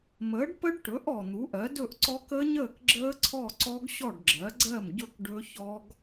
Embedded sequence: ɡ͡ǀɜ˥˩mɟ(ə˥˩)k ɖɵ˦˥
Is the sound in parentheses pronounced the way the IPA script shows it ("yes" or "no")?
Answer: no